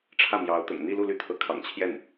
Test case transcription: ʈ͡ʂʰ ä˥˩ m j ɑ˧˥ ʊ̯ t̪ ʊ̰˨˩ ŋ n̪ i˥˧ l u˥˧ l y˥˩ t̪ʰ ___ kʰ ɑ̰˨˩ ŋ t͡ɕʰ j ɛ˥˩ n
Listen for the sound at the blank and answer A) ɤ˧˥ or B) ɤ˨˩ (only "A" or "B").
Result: A